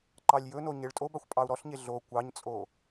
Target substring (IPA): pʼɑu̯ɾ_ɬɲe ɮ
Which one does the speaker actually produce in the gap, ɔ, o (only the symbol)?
ɔ